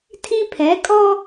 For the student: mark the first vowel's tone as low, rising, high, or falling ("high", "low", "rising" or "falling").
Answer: high